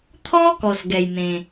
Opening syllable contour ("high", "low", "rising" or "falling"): high